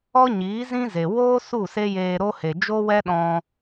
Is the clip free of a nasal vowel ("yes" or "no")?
no